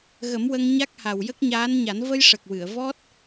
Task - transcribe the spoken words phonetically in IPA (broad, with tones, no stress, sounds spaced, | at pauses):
ɣ ə˨˩˦ m w ə˧ ŋ ɲ a˦˥ k̚ h a˨˩ w j ə˦˥ k̚ ɲ aː˧˥ n ɲ a˨˩˦ n v ə˧ j ʂ ə˨˩ k̚ w ɨ˨˩˨ ə̯ v ɔ˦˥ t̚